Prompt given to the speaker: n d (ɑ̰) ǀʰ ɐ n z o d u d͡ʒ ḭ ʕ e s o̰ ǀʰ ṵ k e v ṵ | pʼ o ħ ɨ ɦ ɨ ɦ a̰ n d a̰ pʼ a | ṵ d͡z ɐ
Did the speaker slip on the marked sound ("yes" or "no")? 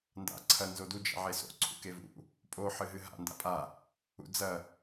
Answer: yes